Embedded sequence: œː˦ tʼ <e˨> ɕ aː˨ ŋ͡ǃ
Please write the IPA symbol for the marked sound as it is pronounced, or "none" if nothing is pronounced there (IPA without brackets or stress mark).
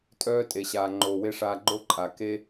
e˨